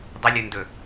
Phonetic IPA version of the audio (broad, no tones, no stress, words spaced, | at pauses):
dˤəlʲɵndɵ